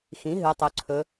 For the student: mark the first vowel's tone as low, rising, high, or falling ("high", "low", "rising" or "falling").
rising